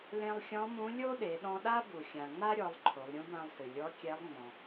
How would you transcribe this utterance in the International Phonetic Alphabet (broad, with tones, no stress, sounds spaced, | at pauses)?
l ẽ˧ lˠ xʲ ɔ̃˧˥ m ũ˧˥ lʲ o˥ ɗ e˩˧ ɗ ɔ̃˧ ɗ a˥ b u˩ xʲ ã˩ ŋ͡m a˥ ɾʲ ɔ˩˧ lˠ ǃʰ o˩˧ lˠ ɾʲ ũ˧˥ b ã˧ lˠ s ɨ˩ lʲ ɔ˧˥ kʲ ɛ˧˥ lˠ ŋ͡m ɔ̃˩